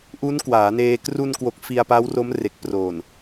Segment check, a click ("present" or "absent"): absent